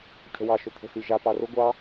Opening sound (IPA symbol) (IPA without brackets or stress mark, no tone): cʰ